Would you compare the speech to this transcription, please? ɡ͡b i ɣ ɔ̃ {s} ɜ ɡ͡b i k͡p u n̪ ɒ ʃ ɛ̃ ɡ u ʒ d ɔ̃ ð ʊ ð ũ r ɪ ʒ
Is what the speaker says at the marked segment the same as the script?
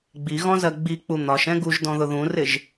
no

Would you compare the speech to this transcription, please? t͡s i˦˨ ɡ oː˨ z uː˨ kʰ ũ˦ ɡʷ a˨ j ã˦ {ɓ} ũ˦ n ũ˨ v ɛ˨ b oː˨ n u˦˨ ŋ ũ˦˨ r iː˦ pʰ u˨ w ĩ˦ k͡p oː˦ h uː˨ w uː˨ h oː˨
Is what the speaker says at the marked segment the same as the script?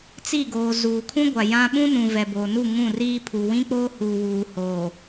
yes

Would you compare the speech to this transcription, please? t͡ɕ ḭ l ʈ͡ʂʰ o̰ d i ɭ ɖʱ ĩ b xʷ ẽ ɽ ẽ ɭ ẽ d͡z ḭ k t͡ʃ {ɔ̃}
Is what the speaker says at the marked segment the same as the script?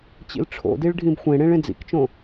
no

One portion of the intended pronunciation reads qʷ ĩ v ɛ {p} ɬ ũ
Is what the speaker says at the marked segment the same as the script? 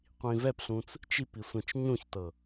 yes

